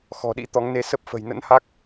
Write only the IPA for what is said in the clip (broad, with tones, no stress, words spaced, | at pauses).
xɔ̤˨˩ɗḭ˧˥ t̪ɔ˨˦ŋne˧ sə˦˥p̚fə̤˨˩j nə̰˧˥nha˦˥k̚